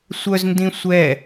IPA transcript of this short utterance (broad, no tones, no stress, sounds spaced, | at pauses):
sʷ œ z n d ĩ sʷ ɛ